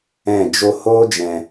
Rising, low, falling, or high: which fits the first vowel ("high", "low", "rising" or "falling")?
falling